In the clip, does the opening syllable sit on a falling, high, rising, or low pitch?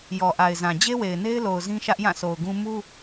low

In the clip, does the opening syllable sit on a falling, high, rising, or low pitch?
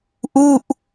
falling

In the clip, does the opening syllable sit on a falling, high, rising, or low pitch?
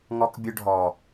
high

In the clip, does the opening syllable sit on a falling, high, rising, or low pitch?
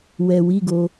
low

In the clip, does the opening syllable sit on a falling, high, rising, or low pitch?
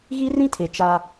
high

